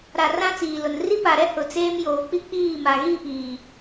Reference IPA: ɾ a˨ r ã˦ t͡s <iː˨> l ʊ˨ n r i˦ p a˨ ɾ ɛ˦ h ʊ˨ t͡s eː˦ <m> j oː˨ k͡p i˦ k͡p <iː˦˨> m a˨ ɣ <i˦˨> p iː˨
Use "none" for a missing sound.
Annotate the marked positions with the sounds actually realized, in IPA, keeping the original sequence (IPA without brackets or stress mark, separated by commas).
iː˨, m, iː˦˨, i˦˨